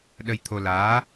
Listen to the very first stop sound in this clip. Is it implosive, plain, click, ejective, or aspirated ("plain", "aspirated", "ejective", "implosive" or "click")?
implosive